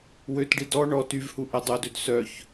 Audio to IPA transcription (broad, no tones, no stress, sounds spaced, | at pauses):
w ø t ɖ i d ɔ ɳ ɔ t y v h u ʔ ɛ dˤ o d ø d s œ ç